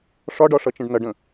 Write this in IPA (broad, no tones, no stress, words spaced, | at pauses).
ʂɒɖɒʂʌt͡ʃə̃ɖ nʌɖə̃